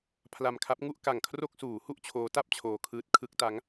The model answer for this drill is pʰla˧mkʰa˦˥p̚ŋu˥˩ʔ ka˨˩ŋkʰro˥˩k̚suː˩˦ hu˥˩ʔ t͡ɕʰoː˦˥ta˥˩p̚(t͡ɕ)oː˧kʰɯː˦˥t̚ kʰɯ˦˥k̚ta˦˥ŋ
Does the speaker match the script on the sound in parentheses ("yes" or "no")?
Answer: no